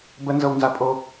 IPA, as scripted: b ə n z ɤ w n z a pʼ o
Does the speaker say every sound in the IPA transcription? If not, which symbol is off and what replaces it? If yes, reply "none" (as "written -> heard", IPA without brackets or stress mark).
none